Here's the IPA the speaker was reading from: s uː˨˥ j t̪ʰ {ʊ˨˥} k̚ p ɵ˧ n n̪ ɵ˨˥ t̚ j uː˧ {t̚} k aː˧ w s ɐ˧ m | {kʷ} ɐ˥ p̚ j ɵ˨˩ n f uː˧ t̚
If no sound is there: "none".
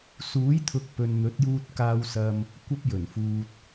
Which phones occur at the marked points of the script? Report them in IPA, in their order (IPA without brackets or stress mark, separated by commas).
ʊ˨˥, t̚, kʷ